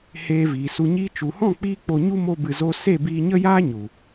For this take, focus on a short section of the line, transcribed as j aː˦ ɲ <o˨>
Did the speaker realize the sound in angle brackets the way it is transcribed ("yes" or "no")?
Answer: no